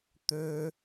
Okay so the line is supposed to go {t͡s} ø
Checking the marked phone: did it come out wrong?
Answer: yes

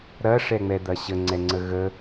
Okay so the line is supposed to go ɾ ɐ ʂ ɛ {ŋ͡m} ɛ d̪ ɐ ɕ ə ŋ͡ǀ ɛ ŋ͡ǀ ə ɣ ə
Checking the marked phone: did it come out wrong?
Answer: no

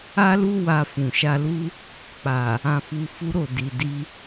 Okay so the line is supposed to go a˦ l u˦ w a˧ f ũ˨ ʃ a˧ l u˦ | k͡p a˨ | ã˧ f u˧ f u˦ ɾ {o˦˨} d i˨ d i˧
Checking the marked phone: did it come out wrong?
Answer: no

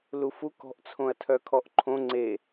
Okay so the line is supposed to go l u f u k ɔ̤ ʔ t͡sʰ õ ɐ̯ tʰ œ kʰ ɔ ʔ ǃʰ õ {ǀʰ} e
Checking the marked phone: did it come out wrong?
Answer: yes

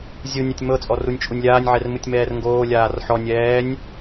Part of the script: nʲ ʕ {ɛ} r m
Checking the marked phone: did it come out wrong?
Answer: no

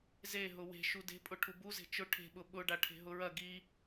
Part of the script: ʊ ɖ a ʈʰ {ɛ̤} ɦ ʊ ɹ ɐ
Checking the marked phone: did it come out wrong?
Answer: yes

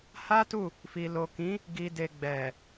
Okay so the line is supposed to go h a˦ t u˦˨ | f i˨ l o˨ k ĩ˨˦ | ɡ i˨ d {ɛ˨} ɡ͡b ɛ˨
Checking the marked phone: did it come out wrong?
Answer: yes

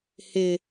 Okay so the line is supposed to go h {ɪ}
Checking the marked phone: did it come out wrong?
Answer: no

